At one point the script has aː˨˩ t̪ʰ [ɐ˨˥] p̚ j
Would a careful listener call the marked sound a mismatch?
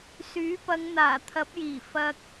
no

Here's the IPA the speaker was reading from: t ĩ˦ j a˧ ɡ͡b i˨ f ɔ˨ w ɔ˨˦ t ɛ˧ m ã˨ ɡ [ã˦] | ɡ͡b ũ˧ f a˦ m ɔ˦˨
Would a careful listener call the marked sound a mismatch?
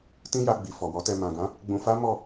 yes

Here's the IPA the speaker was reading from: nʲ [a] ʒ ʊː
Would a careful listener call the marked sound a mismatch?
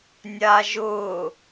yes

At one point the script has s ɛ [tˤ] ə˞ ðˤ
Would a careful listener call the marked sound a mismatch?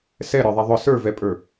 yes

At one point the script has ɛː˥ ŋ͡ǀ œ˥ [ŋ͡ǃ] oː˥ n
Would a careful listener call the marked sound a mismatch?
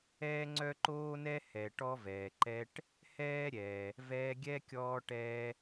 yes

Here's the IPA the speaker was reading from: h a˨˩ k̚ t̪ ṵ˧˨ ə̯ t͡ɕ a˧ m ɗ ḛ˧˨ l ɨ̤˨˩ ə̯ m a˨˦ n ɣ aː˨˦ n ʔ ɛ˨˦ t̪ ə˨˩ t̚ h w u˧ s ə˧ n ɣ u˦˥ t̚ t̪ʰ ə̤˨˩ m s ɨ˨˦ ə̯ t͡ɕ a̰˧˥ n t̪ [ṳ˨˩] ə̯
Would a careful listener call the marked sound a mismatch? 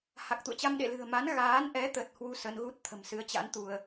yes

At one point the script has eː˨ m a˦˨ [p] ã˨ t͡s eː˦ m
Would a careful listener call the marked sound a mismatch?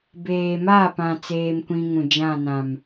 no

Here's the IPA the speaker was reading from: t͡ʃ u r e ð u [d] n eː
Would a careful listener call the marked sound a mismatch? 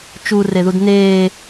no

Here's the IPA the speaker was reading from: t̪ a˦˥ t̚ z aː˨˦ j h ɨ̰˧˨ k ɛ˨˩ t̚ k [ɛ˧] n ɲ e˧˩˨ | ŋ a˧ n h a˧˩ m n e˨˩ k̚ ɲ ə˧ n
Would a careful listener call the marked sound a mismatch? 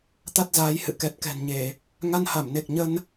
yes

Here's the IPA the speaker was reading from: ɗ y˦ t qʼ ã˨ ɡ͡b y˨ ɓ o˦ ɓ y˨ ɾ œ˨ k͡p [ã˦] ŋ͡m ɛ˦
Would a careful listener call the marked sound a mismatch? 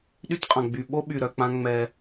no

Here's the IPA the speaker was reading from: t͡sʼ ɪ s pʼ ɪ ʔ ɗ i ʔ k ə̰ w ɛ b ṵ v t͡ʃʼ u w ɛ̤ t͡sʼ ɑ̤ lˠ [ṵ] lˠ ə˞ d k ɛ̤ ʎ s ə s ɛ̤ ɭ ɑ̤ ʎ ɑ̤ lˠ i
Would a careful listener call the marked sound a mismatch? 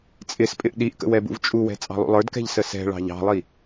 no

